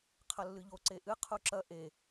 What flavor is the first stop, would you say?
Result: aspirated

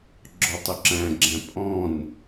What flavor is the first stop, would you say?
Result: click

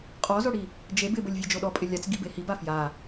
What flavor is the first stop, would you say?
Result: ejective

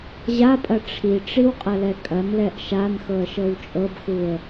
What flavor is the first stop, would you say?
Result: ejective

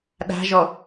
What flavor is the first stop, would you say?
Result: implosive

